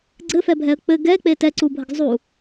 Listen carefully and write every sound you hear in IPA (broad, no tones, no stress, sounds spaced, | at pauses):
ɡ͡ǀ ɘ f ɛ bʱ ɛ ə̯ k͡p ɘ ɡ ɛ k͡p e t ɛ ǀ u bʱ ə ɡ zˤ u